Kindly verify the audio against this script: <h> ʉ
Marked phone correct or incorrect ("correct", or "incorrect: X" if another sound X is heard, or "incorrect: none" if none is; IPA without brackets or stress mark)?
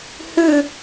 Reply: correct